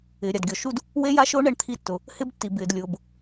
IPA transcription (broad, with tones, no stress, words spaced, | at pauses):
ɪː˨ɾʲa˨dɡʲɔ˨ ʃu˦d | we˦ ja˦ʃʊː˦ ɳɛ˦ɳ t̪ʰi˦tːʊ˨ | hɪ˦btːi˨ bɪː˨dlʲʊː˨b